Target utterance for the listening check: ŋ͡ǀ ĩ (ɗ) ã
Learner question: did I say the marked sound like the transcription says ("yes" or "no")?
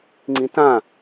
no